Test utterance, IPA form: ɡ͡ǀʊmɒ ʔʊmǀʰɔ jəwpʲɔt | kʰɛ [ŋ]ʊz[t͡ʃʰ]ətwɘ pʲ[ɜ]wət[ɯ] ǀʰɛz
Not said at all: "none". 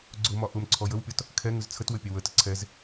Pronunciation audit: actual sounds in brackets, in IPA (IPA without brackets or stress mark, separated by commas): ŋ, t͡sʰ, ɛ, ə